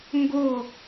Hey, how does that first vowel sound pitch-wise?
falling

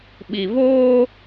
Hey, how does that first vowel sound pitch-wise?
low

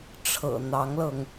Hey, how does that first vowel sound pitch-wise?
low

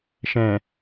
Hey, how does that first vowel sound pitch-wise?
low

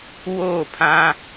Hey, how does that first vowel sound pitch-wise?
falling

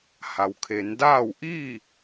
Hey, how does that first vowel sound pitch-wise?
low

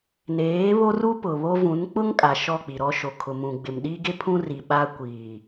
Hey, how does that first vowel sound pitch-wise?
rising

